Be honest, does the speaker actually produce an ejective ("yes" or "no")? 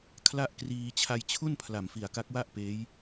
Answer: no